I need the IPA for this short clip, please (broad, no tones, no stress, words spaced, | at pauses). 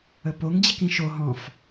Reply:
əpoŋ d͡ʑikĩʃo ɦɔ̃f